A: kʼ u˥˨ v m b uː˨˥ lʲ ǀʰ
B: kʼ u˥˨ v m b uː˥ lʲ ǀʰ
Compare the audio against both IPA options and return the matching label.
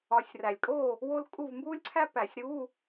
B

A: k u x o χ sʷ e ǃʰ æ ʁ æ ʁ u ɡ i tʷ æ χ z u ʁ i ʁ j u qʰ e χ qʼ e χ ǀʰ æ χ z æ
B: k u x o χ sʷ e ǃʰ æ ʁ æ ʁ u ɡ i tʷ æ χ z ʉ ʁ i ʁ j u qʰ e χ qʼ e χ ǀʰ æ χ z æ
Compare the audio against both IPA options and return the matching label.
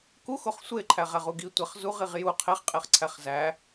A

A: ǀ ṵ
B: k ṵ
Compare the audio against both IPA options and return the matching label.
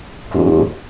B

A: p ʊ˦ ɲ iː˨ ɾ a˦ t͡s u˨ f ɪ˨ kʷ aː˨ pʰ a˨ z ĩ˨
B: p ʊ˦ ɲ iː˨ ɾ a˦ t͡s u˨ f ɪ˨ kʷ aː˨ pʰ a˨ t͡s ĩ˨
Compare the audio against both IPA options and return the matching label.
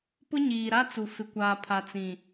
B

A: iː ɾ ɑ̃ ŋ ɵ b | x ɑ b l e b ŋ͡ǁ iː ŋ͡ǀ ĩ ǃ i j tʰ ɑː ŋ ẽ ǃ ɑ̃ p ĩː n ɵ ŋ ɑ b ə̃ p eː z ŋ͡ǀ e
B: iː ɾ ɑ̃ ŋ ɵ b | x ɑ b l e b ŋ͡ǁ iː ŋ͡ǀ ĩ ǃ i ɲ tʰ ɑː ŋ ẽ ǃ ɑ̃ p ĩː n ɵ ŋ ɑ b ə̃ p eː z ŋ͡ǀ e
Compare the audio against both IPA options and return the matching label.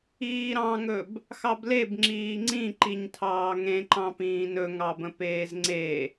B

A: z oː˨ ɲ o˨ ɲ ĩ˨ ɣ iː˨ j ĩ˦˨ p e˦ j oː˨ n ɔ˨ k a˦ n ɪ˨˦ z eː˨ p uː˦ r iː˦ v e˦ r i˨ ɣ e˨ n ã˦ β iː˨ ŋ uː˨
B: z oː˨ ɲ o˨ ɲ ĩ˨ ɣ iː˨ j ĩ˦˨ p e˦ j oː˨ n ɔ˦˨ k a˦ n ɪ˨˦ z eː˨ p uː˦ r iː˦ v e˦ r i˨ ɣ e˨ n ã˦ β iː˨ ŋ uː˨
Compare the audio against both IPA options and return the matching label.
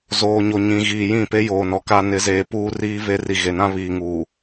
A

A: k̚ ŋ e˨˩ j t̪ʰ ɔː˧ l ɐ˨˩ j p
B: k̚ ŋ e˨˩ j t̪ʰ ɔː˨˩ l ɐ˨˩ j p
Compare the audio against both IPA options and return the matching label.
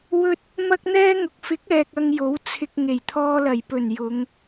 A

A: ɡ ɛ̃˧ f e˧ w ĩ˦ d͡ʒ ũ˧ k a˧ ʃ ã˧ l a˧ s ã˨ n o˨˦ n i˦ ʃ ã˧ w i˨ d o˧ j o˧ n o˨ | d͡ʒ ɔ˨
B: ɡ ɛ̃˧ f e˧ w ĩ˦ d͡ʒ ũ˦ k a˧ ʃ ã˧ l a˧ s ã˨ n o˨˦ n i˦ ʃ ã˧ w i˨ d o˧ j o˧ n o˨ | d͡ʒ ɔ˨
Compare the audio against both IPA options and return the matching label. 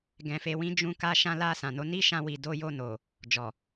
A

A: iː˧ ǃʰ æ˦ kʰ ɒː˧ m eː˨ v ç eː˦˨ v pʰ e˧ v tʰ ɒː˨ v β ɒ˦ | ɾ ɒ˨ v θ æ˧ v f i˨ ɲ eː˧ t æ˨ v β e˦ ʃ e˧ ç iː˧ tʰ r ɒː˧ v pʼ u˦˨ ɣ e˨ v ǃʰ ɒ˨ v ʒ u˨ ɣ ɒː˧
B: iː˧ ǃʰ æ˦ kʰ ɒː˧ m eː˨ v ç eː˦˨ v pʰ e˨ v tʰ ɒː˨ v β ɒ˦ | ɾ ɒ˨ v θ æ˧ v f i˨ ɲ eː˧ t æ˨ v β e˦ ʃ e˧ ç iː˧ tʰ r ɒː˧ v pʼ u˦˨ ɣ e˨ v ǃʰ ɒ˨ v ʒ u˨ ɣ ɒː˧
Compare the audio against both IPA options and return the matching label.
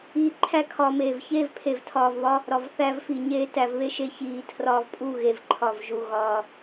B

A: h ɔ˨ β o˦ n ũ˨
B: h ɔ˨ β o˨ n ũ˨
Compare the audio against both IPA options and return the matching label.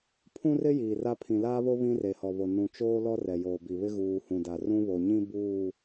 B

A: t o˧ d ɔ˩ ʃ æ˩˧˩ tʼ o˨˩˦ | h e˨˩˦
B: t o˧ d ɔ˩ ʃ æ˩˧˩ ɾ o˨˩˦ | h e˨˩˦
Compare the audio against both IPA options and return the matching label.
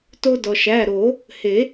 B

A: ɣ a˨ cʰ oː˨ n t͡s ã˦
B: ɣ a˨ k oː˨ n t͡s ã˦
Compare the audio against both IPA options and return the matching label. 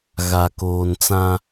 B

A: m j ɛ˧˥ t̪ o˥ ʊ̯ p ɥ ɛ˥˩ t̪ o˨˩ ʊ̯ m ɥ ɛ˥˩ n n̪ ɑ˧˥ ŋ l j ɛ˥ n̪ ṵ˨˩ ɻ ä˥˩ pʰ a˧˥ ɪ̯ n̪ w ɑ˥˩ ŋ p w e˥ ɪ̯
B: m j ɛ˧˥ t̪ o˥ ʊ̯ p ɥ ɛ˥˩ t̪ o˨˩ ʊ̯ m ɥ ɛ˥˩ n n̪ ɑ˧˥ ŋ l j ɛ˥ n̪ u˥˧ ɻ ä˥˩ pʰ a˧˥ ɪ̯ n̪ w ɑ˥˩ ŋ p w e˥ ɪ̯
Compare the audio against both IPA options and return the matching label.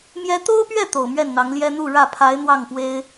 B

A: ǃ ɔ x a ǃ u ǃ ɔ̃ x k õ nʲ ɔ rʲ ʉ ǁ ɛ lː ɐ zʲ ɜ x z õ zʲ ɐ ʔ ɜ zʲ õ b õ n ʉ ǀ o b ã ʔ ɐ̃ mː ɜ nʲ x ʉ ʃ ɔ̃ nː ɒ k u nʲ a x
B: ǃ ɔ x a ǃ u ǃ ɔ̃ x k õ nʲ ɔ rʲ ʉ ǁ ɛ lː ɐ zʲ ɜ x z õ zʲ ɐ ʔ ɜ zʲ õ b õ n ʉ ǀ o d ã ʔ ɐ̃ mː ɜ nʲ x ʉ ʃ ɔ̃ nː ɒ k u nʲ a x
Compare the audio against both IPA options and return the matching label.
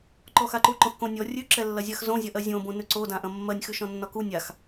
B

